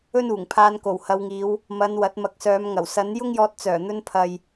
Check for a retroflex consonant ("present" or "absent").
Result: absent